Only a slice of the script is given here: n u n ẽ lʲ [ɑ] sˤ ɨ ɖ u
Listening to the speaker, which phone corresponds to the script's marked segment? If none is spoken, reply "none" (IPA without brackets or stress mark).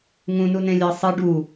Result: ɑ